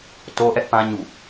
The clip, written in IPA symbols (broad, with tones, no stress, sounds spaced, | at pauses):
t o˦ ʔ ɛ˦ ʔ p ã˦ ɲ ṵ˦˨